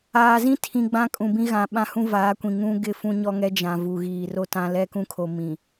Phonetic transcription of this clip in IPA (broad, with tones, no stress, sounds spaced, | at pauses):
aː˨ z ĩ˦ tʰ ĩ˨ ɡ͡b ã˦ kʼ ũ˨ b ĩ˦ ɣ ã˨ ɓ ã˦ h ũ˦ v aː˨˦ kʷ ĩ˨ ŋ ũ˦ ɡ ɪ˦ f ũ˦ ɲ ɔ˦ ŋ ɛ˦ d͡ʒ ã˨ v u˨ ɣ iː˨ r o˦ t ã˦ l ɛ˦ k ũ˦ kʰ o˨ m ĩ˨